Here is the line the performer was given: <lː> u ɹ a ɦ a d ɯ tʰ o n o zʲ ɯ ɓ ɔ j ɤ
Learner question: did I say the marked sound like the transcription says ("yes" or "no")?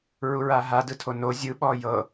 no